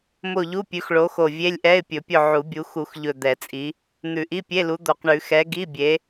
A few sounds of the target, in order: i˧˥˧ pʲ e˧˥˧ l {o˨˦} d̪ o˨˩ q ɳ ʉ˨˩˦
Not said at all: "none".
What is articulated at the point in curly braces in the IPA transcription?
u˨˦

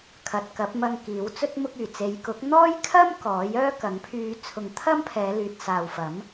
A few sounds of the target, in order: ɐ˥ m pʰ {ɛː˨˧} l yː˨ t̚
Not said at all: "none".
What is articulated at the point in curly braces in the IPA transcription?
ɛː˨˧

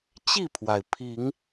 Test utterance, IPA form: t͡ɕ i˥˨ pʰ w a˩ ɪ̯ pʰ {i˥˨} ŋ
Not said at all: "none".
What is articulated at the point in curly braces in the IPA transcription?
i˨˦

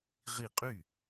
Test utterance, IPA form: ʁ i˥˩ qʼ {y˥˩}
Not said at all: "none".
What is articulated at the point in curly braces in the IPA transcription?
y˥˩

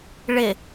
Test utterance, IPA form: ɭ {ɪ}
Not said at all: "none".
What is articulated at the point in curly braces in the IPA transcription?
ɪ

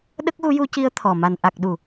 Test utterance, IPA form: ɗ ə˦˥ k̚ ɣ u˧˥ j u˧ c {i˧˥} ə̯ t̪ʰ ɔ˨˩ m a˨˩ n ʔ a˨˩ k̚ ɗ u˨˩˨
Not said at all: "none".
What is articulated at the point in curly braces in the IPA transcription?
i˧˥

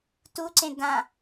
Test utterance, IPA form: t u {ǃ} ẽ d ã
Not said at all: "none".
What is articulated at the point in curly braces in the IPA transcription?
ǀ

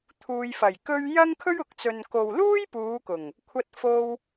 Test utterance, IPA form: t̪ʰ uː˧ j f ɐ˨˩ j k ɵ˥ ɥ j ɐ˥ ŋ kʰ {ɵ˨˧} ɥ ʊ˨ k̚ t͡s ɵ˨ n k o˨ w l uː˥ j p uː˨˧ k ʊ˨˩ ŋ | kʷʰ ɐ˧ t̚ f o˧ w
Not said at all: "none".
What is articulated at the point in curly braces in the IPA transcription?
ɵ˥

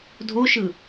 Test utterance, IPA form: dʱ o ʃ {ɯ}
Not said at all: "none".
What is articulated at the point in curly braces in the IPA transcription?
ɯ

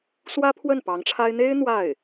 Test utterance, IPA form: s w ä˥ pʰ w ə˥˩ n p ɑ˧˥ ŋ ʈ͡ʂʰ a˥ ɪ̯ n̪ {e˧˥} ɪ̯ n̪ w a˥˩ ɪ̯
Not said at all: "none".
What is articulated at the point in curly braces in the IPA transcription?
e˥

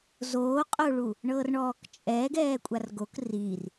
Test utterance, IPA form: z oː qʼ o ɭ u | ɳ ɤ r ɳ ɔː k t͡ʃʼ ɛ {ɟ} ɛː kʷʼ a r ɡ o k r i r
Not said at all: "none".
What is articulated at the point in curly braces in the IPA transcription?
ɡ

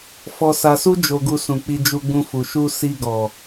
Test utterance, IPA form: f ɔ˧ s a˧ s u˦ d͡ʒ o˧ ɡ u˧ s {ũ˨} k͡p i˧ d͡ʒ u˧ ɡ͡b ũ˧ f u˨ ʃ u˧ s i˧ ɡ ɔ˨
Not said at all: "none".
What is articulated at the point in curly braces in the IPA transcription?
ũ˨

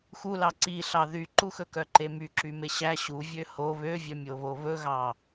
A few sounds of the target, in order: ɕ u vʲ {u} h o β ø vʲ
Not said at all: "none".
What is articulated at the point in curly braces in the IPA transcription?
ø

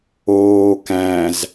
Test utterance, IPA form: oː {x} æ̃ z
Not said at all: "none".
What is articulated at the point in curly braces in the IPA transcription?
k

